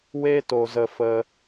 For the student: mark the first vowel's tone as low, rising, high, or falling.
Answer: high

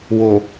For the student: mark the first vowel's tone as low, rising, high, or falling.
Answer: low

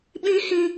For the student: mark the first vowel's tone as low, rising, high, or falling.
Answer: high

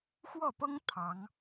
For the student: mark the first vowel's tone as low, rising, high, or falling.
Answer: falling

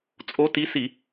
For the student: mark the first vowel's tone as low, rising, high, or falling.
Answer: rising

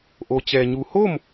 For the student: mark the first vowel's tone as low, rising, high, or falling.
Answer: low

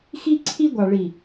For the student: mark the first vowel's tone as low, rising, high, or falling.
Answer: high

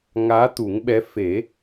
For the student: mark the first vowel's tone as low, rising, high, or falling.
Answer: rising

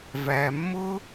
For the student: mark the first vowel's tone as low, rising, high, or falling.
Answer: low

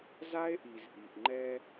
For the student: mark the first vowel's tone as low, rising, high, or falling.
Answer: high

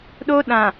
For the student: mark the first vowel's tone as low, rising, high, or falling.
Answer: high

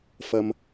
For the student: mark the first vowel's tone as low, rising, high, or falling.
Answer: low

